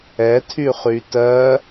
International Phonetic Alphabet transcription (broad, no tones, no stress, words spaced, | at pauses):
ɛtʰyχy tɜ